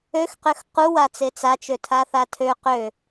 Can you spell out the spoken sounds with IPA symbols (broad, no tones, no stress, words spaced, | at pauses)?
øxqøx qu wat͡set͡sat͡ʃø tʰaθatʰø qø